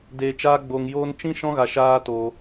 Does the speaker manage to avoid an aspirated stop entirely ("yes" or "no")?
yes